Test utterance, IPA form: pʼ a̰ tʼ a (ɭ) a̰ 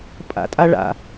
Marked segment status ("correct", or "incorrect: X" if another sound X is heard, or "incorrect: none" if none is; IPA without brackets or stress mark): correct